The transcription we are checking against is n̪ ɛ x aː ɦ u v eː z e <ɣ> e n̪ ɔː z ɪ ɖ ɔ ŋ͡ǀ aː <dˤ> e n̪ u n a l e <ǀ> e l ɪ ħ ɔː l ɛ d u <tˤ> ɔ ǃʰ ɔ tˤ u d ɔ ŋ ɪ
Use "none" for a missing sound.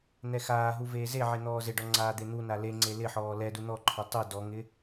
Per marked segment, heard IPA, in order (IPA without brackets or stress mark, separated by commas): ʕ, d̪, ŋ͡ǀ, n̪